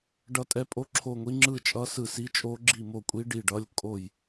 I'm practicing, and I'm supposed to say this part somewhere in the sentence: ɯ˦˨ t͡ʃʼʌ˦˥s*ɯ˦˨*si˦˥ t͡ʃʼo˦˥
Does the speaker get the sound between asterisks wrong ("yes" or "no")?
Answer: no